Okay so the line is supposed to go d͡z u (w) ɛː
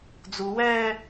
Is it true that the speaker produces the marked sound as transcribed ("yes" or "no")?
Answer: yes